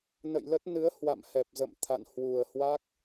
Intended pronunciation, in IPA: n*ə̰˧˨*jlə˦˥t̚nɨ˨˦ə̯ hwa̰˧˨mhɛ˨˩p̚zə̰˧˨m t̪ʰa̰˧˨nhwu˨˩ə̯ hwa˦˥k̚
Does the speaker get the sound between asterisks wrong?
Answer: no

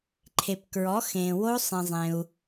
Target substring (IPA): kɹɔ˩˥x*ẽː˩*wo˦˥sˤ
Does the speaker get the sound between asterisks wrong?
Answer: no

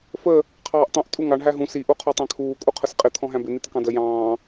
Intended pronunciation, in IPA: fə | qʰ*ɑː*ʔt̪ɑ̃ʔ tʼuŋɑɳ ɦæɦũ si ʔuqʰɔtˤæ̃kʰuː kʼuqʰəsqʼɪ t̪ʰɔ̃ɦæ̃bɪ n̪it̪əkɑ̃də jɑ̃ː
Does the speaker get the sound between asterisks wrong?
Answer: no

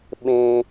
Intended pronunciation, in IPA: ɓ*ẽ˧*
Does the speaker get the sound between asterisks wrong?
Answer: no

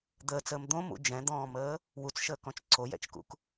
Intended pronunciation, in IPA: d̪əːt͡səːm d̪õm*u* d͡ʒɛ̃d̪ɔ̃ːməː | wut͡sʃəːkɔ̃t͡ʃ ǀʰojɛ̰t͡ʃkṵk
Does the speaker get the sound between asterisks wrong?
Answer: yes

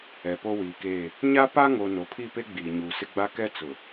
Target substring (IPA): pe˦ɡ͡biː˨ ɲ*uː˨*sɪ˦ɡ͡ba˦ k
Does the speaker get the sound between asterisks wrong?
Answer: no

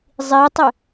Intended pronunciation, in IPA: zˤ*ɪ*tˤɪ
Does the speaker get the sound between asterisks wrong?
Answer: yes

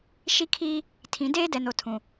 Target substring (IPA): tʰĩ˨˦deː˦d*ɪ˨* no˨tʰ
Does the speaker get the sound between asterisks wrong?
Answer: yes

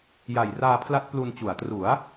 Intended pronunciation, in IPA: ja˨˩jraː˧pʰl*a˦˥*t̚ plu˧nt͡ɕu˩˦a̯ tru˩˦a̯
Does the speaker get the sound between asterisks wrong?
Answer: no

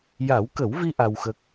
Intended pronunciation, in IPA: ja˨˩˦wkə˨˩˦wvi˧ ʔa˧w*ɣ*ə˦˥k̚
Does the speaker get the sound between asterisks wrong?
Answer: yes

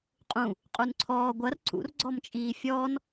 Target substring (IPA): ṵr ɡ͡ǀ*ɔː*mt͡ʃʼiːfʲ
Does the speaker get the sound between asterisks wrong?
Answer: yes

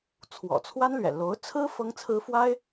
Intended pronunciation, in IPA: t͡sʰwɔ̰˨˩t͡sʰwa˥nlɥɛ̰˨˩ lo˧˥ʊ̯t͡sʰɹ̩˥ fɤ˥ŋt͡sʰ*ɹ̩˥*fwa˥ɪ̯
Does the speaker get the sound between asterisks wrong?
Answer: no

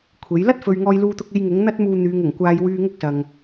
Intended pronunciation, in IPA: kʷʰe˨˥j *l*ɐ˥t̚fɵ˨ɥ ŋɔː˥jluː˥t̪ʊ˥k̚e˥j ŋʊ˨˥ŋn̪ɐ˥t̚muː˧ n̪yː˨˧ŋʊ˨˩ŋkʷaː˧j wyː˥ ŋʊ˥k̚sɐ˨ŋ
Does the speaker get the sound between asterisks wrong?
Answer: no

